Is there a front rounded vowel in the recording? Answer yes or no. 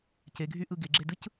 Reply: yes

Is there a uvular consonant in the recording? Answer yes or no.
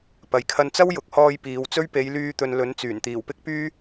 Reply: no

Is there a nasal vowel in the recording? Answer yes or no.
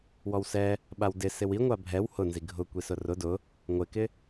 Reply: no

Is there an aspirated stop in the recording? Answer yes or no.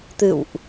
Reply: no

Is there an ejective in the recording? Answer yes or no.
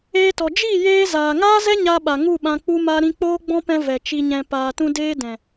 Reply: no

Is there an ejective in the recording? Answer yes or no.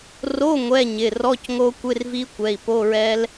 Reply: no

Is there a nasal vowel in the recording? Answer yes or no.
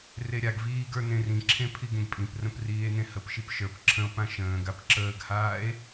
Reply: yes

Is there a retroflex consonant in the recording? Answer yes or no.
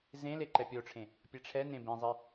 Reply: yes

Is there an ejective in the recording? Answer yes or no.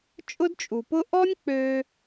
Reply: yes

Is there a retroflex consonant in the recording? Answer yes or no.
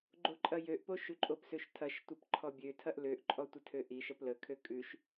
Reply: no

